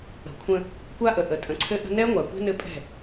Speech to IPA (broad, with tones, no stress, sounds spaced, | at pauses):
ə̤˨ kʷʰ ə̃˦ | kʷ a˦ ʔ ə˨ ʔ ə˨ tʼ ə̃˨ ǀʰ ɘ˦ ʔ ə̤˦ n ɛ˦ ŋʷ a˨ kʷ ɛ̤˦ n ɘ˦ pʼ ɛ̤˦˨